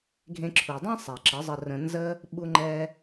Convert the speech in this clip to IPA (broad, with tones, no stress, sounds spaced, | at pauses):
ɡʱ ẽ˧ ǁʰ u˨ dˤ ẽ˦ sˤ ɛ˨ ǁ ə˨˦ zˤ ə˧ r ə̃˧ n z ə˦ | ɓ u˦ ŋ͡ǃ ɛ˦